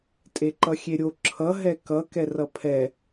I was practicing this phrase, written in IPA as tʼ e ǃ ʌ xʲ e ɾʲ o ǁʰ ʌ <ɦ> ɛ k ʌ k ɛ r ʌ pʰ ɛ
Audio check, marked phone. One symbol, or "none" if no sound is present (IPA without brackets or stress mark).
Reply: ɦ